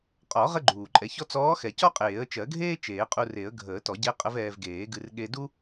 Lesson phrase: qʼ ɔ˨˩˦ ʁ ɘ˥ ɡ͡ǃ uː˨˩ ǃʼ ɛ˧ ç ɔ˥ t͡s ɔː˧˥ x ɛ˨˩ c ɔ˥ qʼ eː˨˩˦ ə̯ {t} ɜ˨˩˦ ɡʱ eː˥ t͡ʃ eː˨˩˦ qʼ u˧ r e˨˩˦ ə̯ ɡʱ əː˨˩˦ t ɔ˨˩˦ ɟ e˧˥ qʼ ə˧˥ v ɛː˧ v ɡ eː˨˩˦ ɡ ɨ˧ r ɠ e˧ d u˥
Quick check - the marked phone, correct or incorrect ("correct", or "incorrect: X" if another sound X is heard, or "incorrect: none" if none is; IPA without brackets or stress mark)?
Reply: incorrect: t͡ʃ